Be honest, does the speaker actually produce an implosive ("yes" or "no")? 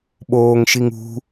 yes